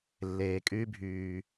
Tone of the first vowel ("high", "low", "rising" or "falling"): low